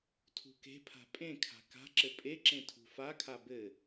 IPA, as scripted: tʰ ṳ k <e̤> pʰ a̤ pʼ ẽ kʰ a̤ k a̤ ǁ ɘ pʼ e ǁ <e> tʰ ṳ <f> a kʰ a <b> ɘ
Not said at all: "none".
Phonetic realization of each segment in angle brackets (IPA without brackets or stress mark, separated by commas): e̤, ẽ, f, b